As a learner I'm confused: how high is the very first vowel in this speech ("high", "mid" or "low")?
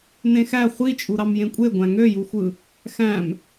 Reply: mid